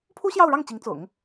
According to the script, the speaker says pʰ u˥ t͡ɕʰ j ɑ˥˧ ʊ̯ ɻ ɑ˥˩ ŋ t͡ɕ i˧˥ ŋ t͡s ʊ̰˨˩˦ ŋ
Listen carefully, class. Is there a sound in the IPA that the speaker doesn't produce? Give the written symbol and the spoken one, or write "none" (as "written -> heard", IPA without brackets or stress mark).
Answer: t͡ɕʰ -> ɕ